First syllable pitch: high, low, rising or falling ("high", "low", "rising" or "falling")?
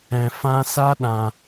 low